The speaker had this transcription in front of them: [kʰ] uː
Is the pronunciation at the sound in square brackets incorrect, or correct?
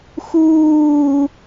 incorrect